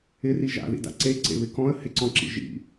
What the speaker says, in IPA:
ɪ r i ʒ a̰ ð ḭ d a̰ ǀ e ǀ ḛ β ɪ k ɔ̃ ə̯ h ɪ ǀ ɔ̃ ǁ ḭ ʒ ḭ

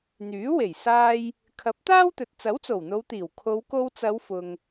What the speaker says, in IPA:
n̪ yː˨˥ w e˨˩ j s aː˧ j | kʰ ɐ˨˥ p̚ t̪ aː˥ w t̪ ɵ˨ t̚ t͡s ɐ˨˥ w t͡s o˨˩ w n̪ o˨˧ w t̪ iː˨˩ w kʰ o˨˧ w k o˧ w t͡s ɐ˨˧ w f ʊ˨ ŋ

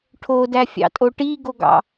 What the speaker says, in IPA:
ʈʰ o d æ fʲ ɑ̰ tʼ o ʈ i ɡ o ɡ ɑ̰

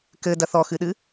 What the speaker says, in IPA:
k ɘ d ɐ θ ɔ x ɨ ɗ ɨ

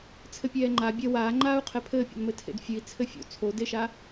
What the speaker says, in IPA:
t͡sʰ ɘ pʲ ɛː ŋ͡ǃ a bʲ ɐ w aː ŋ͡ǃ aː u̯ qʰ ɛ pʰ ɘː pʲ ɔ̰ n m ɘ tʰ ḛ d fʲ ɨ i̯ t͡sʰ ɘ fʲ o̰ t͡sʰ o d e ʃ a

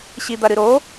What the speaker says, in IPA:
ɕ i d̪ ɐ ɾ ɨ ɾ o

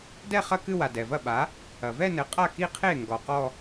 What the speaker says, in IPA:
d ɛ˥˧ χ ɐ˥˧ k ɨ˥˧ w a˩ d ɛ˩ v ɐ˥˩ ɓ a˩˥ | ɐ˩ v ɛ˥˧ n ɘ˩˥ qʼ a˥˩ k i˥˧ qʰ e˥˩ ŋ ɡ ɔ˩ q ɔ˥˧

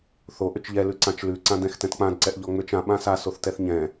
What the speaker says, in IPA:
θ o ʔ ʏ t͡ʃ ʎ ɛ l ʉ ǀ ã t͡ʃ l ʉ ǀ ã d ɛ̃ x t ɛ̃ t k͡p ã d ǀ ɛ ʔ ʎ ɔ ŋ͡m ʏ t͡ʃ ã ɓ ã s a s o θ t ɛ θ ɲ ɛ̃

